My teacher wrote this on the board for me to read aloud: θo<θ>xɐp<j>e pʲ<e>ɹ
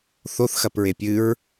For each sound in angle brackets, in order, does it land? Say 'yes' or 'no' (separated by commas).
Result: yes, no, no